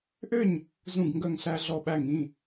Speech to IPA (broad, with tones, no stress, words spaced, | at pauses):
ʔø˥˨ɲ | zũ˥˨ɡŋɡœ˥˨ŋɬæ˦ ɮɔ˧˩ɓæ˧˩ŋĩ˩˧˩